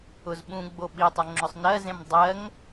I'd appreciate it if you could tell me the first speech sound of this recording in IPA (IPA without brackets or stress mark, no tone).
ʊ